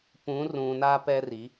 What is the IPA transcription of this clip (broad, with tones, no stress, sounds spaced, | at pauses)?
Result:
p ũ˨˦ r ũ˨ n a˦ p ɛ˦ r i˨˦